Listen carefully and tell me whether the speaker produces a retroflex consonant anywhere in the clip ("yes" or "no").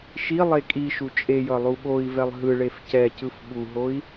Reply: yes